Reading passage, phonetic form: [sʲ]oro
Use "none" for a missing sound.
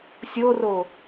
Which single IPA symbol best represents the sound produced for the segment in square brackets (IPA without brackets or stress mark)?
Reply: sʲ